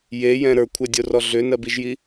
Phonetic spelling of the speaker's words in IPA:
j e j ɛ̃ ɾ ə˞ kʷʰ ɛ dʲ o r ɔ ɮ ʏ n ɜ b i ʒ j i

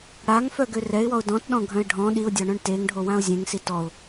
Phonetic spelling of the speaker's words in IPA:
ɽ a ŋ f œ ɡ ø r ɛ ɪ̯ w ɔ ʊ̯ d ɔ̃ t ɗ ɔ̃ ɡʱ œ̃ ɪ̯ ɖʱ ɔ̃ ɗ i ʊ̯ dʲ ɔ ɳ œ̃ ɳ t e ŋ ɖʱ o w ã ʊ̯ zʲ ẽ ŋ s i t ɔ ʊ̯

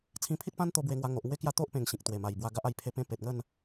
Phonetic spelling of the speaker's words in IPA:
t͡sʰ ĩ˧ pʰ i˦ t̚ p ã˦ n t̪ o˧ b w e˧ ŋ w a˧ ŋ o˨ ʔ ŋ w e˦ k j a˦ t̪ o˦ ʔ p ẽ˨˩ ŋ ɕ ĩ˨ k̚ t̪ w e˨˩ m a˨˩ j b w a˧ ɡ a˦ ʔ a˧ j pʰ e˧ p ẽ˧ p e˨ t̚ ŋ ə˥˧ n

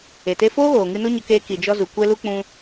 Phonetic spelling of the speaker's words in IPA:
e˨ t e˧ f oː˦ ɣ oː˨ ŋ ɨ˧ n o˦ ɲ ə˧ k eː˧ k i˨ d͡ʒ ɔ˧ z u˨ kʷ ɛ˧ l u˧ k͡p ũ˧

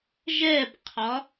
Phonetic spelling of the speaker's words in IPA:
ʒ ɛ b qʰ ɒ

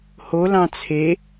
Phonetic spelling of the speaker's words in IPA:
h o l ɑ̃ t͡sʰ e

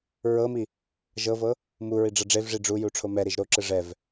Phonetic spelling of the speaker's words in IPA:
ɹ ɤ m i | ʒ ɤ v ɤ | m u ɹ i ɖ͡ʐ ɤ ɖ͡ʐ e v ʐ i ɖ͡ʐ u j u ʈ͡ʂʰ o m ɛ ɾ i ʒ ɾ o ǁ ɯ ʐ ɛ v

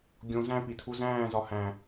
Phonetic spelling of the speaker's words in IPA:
ɡʲ õ z æ̃ p i tʰ u z æ̃ː z ɒ h æ̃

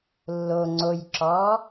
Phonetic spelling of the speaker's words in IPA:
lː o ŋ͡ǀ o j ǁ ɔː

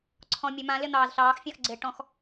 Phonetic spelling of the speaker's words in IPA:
ǀʰ ɔ̃ mʲ ɵ m ã l ɪ n̪ ɑː z ɬ ɑː x fʲ ɑ̃ x ɡ͡ǀ ɪː ʈ ɔ̃ x

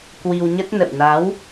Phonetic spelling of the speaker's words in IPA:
k w i˧ w ɲ ə˦˥ t̚ n ə̰˧˨ w n a˨˦ w

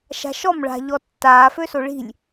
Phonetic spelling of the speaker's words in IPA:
ʃ a̤ ʃ ɔ m ɭ a̤ ʎ ɔ tː aː f ø s o ɭ i̤ lʲ

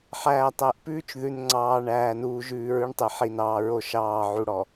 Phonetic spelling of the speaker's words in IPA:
ħ æː˨ tˤ æ˨ ʔ p ʉː˦ t͡ʃ ð ʉ˨ n ŋ͡ǀ ɑː˨ ɳ æː˨ n uː˨ ʒ ʉː˨ ɹ ʉ˦ ɳ tˤ ɛ˨ ħ i˨ n ɑː˨ ɹ o˦ ʃ ɑː˦˨ ʕ u˨ ɽ ɔ˨

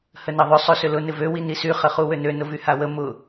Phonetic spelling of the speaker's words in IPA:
h ə n ɐ ðˤ ʏ sˤ ø s ʏ l ʊ n ɪ v ø w i n i s y χ ə χ u w ø n ø n ʊ v y h a w ə m ʊ

